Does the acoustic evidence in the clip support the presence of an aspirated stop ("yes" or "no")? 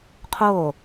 yes